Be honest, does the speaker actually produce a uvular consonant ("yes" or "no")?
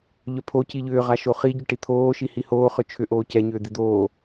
yes